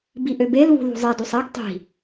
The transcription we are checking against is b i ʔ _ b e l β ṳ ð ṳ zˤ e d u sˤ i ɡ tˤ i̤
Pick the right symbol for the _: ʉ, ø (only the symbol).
ø